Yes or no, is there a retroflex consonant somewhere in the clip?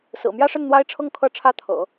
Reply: yes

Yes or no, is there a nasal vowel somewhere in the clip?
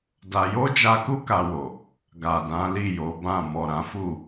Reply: yes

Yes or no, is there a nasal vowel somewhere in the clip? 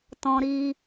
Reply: yes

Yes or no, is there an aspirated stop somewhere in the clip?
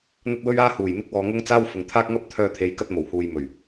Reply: yes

